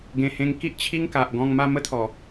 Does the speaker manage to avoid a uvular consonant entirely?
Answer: yes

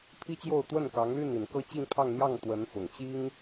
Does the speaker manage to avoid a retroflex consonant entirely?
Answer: yes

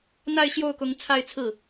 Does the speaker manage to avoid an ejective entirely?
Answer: yes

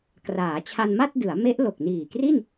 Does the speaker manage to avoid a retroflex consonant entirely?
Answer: yes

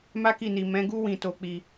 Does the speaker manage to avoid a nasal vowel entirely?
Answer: no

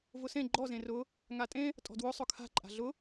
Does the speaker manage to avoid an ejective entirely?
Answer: no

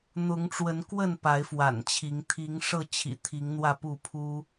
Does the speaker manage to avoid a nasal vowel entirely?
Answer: yes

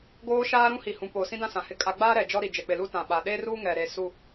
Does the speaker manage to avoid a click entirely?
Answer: yes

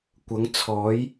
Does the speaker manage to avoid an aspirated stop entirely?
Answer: no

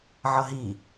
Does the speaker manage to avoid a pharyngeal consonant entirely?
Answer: no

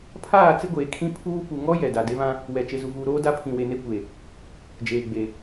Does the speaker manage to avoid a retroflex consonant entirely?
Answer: yes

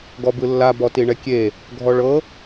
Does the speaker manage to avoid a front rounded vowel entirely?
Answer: yes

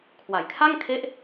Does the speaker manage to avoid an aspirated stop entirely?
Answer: no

